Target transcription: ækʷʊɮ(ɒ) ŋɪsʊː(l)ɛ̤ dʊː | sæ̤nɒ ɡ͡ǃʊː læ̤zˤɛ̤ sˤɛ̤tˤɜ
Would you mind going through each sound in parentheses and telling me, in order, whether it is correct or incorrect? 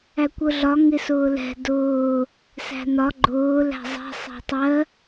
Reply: correct, correct

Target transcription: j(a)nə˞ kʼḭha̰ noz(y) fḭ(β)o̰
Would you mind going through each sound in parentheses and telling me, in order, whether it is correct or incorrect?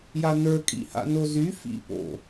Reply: correct, correct, incorrect

